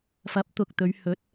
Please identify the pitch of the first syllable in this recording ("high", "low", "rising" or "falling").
rising